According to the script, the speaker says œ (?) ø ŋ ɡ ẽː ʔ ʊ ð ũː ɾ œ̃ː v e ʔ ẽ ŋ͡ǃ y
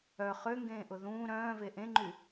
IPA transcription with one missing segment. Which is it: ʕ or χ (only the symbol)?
χ